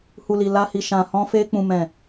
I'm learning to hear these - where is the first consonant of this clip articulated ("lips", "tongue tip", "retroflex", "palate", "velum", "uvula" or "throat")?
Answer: throat